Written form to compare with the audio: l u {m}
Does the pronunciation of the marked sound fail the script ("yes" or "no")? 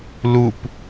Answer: yes